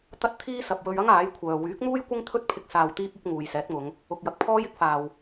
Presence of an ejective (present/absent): absent